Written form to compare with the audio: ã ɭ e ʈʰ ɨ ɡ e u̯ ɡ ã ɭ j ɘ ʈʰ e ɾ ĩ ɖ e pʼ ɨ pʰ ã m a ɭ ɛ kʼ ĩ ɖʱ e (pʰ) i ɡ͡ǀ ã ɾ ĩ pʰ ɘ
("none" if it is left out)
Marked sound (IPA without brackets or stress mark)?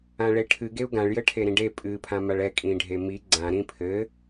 m